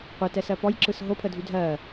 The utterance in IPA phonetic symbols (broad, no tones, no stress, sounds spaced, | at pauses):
qʷ e t ɛ s ɜ p ɔ j ǁ ɯ s ɦ o pʰ ə dʱ y dʱ ɜ